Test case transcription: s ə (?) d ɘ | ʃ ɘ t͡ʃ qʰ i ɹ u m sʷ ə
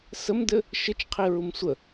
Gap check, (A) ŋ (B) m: B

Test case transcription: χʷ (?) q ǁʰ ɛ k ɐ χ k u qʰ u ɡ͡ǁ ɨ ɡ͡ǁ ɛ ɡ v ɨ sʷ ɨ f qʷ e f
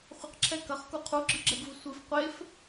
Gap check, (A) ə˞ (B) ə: B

